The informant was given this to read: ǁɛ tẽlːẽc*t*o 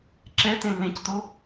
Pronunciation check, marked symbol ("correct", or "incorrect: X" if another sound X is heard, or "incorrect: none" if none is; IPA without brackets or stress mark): correct